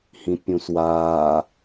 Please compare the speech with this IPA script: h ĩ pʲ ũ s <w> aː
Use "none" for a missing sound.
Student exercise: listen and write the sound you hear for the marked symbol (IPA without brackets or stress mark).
w